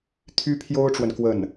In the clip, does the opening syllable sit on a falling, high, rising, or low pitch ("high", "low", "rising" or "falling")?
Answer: high